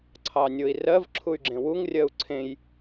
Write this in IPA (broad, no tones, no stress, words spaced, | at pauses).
ǀʰɑnʲoi̯rɜv ǁʰuy̯ɡ͡ǁẽwuŋ rʲɜu̯ǀʰẽj